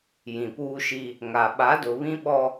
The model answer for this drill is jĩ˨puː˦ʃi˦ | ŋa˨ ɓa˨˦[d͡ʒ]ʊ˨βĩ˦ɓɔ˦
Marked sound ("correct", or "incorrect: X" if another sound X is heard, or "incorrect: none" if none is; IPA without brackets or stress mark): incorrect: d